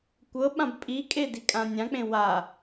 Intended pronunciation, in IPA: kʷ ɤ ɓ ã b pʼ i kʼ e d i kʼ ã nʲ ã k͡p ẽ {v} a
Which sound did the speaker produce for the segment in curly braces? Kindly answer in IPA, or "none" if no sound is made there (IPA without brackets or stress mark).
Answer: w